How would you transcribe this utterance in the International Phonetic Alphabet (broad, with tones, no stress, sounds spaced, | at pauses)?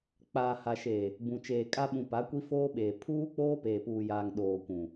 k͡p aː˨ h a˨ ʃ eː˨ | b ũ˨ t͡ʃ eː˨ kʼ a˦ ɓ ũ˨ p a˨˦ kʷ i˦ f oː˦ ɓ eː˨ pʰ uː˦ k͡p oː˦ p eː˨ p uː˨ j aː˨ ŋ ɗ oː˨ kʷ ũ˨